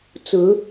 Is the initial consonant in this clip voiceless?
yes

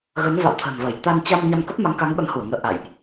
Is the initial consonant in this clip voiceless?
no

